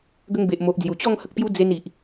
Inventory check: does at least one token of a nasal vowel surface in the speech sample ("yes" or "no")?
no